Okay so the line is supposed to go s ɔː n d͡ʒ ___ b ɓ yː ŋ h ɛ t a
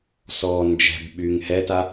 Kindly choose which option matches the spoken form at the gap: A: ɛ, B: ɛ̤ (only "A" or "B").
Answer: B